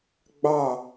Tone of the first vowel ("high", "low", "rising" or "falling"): falling